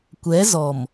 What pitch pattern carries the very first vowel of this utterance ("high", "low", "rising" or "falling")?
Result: rising